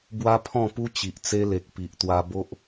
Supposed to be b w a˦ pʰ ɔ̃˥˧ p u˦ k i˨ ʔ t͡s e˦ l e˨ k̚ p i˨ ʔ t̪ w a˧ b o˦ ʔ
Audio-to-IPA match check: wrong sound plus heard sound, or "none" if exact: k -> t͡ɕ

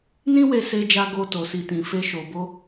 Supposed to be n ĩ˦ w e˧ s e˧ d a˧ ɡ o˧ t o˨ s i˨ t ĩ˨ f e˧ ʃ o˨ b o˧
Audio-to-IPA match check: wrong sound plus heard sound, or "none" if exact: d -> d͡ʒ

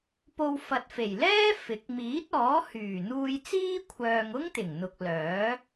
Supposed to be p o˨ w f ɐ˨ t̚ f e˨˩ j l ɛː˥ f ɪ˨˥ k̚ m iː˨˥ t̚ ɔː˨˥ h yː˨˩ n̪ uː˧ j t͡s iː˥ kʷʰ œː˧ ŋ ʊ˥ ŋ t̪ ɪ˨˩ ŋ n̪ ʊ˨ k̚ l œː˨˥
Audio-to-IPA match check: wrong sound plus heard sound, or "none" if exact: none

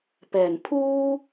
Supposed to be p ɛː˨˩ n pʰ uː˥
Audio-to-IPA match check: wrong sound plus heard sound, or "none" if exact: none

